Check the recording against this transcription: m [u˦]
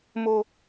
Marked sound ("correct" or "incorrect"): incorrect